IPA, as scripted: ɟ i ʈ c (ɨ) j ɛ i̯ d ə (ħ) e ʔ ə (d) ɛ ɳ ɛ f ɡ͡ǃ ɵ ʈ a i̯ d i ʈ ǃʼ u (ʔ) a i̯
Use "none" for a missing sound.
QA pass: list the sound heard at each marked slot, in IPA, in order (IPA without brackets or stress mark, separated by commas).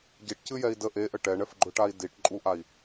ɨ, ʔ, ʈ, ʔ